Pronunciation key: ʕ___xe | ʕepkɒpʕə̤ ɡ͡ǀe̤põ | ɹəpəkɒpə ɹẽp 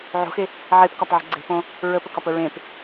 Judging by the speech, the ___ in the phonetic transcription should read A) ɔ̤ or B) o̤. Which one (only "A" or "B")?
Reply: B